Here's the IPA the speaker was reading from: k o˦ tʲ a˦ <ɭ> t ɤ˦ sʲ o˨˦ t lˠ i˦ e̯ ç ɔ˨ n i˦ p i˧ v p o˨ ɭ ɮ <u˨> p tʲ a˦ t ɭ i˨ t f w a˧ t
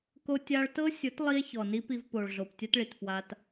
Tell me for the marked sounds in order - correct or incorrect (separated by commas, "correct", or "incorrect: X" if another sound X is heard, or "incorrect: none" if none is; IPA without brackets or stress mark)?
correct, incorrect: o˨